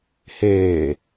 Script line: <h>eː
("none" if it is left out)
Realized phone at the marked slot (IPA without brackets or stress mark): h